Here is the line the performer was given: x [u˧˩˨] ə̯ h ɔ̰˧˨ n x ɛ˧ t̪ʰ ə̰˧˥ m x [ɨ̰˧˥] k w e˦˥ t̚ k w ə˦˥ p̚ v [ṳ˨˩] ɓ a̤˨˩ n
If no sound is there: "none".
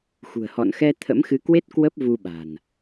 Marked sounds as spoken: ṳ˨˩, ɨ˨˦, u˧

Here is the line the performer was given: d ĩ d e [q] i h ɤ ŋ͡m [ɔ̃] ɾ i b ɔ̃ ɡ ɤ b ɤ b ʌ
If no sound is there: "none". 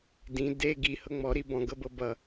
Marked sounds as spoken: ɡ, ɔ

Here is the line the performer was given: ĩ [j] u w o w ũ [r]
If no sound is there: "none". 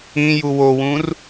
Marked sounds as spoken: j, r

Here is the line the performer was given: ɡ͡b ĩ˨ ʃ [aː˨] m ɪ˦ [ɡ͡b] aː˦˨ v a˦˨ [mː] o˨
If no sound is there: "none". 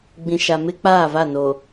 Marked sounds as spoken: a˨, k͡p, n

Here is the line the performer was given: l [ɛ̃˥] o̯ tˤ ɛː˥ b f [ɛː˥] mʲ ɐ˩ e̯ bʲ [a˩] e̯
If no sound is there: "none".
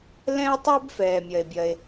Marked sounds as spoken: ɛ̃˥, ɛː˩, ɐ˩

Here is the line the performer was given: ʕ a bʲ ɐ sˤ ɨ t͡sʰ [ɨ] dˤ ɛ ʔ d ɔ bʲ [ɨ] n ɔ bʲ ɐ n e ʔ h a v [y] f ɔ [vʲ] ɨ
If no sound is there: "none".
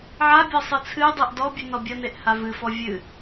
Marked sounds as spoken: ɨ, ɨ, ɨ, vʲ

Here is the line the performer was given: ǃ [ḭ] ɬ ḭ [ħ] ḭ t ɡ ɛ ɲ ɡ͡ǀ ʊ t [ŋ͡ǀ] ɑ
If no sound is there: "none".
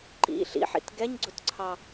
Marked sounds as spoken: ḭ, ħ, ǀʰ

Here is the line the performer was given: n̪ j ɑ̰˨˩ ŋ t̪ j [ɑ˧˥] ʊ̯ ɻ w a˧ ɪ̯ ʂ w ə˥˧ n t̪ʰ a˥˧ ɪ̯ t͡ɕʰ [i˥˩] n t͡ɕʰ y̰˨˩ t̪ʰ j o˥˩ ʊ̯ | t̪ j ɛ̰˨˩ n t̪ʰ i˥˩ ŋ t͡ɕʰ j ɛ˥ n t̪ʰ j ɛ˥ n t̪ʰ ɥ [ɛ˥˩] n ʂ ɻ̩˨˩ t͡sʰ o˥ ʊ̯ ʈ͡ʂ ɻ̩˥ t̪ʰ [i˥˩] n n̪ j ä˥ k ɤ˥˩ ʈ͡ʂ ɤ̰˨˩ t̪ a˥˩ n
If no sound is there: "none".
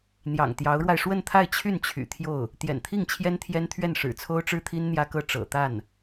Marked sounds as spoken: ɑ˧˥, y˥˩, ɛ˥˩, i˥

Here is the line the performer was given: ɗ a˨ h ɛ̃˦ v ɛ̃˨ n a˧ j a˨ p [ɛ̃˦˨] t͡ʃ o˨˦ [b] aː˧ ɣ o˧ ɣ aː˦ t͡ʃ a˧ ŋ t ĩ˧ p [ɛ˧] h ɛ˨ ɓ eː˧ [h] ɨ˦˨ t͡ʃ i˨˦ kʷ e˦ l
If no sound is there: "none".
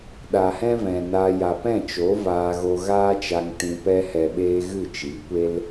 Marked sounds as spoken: ɛ̃˦˨, v, ɛ˦, ɣ

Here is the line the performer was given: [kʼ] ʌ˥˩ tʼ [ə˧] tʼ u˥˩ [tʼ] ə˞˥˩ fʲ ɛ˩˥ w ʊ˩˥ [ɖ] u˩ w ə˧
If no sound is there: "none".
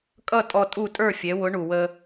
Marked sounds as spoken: kʼ, ɔ˧, tʼ, ɳ

